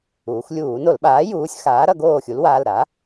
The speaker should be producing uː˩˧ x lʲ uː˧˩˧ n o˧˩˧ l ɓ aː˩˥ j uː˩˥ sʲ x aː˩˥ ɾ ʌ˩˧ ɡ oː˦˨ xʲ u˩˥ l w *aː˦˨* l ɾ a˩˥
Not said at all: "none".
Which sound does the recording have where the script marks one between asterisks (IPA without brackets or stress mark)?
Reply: aː˩˧˩